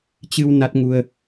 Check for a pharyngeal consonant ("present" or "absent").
absent